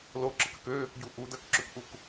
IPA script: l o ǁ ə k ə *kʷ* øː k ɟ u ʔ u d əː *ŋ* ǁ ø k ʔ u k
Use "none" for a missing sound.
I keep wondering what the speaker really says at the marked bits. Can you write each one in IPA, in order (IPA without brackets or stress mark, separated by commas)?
k, k